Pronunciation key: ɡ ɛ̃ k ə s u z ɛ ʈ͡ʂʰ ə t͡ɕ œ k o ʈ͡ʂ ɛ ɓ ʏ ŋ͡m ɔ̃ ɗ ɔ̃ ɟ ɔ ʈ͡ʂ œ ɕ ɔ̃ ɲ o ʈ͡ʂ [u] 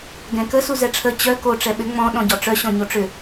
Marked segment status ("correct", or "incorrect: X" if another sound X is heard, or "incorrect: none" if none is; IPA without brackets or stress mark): incorrect: ʏ